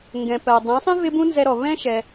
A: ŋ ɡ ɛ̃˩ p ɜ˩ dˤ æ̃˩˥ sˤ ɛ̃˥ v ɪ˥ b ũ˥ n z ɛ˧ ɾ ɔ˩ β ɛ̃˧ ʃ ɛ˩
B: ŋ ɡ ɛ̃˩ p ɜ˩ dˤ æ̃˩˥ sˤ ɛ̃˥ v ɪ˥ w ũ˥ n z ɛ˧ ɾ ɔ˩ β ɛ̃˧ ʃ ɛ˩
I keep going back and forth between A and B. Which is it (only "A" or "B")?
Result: A